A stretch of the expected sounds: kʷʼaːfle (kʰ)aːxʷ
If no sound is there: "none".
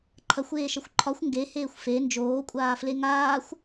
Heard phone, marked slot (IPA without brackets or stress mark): ŋ